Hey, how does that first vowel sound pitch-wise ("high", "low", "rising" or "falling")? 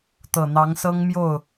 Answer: low